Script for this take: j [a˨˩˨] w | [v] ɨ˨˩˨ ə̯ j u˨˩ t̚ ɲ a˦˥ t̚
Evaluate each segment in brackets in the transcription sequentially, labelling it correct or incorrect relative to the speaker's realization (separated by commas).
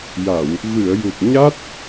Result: correct, correct